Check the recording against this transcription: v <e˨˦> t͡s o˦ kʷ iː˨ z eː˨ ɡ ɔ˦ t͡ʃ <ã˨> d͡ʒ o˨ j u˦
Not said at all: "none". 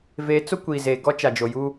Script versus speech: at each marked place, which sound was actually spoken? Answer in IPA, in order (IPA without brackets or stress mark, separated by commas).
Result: e˨˦, a˨